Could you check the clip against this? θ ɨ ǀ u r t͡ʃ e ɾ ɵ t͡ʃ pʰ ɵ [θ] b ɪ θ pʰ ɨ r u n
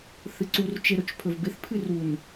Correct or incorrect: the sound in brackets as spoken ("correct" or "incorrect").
incorrect